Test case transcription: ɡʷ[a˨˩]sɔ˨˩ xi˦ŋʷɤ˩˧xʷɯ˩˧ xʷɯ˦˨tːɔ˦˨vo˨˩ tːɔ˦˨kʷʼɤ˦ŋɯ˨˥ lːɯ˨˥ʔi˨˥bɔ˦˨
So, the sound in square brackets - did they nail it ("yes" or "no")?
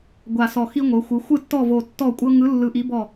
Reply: yes